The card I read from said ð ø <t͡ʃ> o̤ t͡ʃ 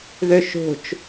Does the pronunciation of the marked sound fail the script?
yes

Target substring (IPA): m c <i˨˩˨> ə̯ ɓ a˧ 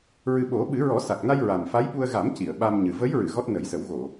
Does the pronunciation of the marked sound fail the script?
no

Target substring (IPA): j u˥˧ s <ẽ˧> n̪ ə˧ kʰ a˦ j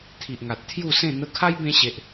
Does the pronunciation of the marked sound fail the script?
yes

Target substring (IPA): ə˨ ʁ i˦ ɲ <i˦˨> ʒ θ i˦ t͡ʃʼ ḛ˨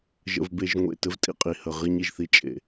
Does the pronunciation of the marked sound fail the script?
yes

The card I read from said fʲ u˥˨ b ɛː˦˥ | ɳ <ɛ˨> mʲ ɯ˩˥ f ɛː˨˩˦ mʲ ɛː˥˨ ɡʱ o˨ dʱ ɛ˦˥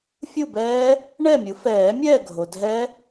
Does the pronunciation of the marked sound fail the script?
yes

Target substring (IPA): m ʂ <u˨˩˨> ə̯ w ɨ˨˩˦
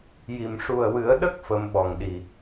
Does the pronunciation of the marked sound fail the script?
yes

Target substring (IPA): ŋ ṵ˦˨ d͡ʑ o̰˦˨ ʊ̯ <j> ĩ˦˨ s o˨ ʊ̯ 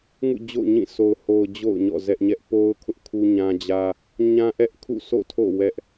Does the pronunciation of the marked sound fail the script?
yes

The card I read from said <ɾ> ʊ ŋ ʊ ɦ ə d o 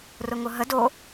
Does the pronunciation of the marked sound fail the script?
yes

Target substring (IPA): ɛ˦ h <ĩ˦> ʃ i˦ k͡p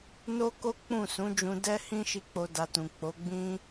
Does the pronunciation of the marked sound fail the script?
no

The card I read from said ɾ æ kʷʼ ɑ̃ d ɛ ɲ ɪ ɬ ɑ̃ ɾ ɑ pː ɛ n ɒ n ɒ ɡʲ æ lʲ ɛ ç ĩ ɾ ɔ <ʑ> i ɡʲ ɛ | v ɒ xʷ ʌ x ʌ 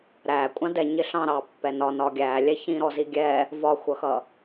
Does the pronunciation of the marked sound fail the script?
yes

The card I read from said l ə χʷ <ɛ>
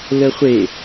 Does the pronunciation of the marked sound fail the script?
yes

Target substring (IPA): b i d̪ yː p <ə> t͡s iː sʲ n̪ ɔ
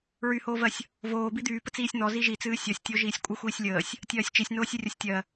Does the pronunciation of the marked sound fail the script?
no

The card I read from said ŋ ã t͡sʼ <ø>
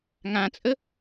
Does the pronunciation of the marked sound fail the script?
yes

